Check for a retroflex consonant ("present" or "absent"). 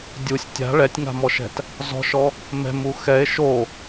present